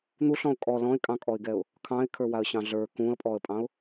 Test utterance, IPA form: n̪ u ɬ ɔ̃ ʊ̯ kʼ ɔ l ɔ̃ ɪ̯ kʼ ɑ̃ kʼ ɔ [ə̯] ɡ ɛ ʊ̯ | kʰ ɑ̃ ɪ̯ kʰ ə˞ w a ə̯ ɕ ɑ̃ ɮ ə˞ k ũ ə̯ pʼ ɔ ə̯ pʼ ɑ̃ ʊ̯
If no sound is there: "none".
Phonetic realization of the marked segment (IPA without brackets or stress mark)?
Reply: ɪ̯